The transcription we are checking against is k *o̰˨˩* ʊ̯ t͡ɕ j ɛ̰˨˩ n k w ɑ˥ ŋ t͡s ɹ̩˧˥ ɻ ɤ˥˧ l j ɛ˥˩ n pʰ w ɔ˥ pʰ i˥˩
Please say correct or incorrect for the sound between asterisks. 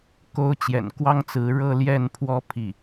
incorrect: o˥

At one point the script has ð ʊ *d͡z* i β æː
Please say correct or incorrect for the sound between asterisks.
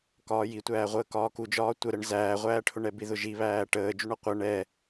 incorrect: ʒ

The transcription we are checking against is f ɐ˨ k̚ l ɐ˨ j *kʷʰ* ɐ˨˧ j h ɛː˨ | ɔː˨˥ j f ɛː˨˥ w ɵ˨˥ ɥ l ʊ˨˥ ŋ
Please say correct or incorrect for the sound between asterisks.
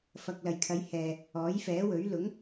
incorrect: kʰ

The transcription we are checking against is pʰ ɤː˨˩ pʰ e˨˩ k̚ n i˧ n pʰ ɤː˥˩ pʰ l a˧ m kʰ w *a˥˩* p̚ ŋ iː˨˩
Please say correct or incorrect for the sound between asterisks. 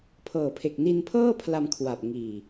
incorrect: a˨˩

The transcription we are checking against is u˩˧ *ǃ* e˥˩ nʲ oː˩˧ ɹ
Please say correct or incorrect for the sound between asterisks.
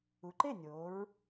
correct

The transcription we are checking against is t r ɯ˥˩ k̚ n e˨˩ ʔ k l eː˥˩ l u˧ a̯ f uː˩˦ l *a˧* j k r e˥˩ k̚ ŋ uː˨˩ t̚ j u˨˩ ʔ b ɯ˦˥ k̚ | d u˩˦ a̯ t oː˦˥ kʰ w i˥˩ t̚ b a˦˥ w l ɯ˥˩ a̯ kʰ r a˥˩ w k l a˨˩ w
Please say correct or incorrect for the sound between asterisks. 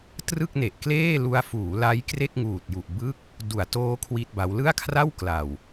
incorrect: a˦˥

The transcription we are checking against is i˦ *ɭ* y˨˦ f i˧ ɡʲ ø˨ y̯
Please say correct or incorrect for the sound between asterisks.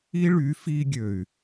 correct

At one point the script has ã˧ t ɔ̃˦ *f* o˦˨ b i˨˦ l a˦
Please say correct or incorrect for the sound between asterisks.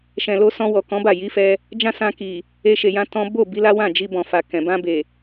incorrect: b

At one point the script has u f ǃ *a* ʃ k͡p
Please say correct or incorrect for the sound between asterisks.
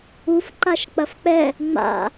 correct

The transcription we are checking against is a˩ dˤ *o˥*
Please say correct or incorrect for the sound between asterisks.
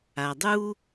incorrect: u˥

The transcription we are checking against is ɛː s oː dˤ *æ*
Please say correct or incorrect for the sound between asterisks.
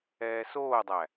correct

